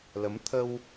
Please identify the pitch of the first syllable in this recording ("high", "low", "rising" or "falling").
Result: rising